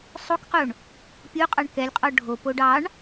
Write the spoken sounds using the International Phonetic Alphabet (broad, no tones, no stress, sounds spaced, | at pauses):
sˤ o k q o ɳ | pʲ o qʼ ɑ ɳ k ɛ lʲ qʼ ɔ ɖʱ o p o ɖ ɑ ɳ